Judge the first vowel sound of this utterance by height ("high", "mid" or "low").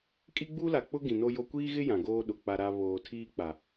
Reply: high